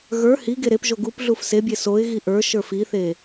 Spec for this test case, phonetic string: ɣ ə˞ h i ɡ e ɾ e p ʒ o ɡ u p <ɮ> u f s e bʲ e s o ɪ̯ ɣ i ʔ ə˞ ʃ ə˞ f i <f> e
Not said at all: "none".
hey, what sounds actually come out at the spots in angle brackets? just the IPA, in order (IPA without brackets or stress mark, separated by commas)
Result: ɮ, θ